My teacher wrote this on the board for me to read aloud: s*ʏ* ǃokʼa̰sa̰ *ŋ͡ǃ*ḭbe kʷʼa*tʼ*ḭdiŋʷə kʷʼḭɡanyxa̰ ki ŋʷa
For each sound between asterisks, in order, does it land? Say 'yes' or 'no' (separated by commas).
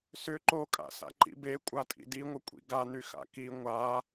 yes, no, yes